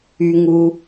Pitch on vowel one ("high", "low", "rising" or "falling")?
high